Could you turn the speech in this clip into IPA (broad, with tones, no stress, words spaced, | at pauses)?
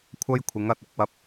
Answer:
kʷʰɐ˥jkʷʰɪ˨˥ŋɐ˨t̚ ɪ˨˥k̚wɐ˧p̚